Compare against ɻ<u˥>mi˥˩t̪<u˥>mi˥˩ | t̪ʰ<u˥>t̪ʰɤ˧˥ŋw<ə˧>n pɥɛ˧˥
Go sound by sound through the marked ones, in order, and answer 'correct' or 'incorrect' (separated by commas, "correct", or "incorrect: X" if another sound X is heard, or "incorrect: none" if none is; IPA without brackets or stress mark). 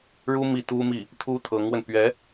correct, correct, correct, correct